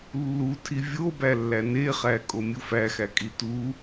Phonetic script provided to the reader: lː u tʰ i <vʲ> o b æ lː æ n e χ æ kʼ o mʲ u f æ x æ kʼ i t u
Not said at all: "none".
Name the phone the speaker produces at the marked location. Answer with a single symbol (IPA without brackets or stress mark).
vʲ